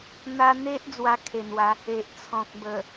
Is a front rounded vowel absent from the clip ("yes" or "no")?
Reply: yes